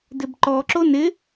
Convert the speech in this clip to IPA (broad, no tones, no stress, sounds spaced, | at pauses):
d ɪ b ǃ ɔ ǁ o n ɪ